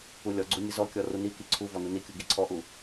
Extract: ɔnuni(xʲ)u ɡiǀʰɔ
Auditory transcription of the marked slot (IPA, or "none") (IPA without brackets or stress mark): kʲ